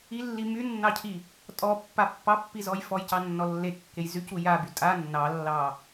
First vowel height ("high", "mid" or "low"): high